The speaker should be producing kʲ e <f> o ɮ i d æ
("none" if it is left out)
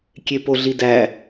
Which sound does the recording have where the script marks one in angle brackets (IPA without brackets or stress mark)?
p